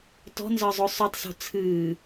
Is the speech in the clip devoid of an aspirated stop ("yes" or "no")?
no